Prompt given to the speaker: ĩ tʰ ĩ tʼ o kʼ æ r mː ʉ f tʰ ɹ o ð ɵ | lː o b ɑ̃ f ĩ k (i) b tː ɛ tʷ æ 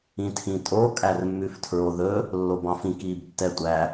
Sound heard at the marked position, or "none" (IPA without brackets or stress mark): iː